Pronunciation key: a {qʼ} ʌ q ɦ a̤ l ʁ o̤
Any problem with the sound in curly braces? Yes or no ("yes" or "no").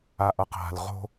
yes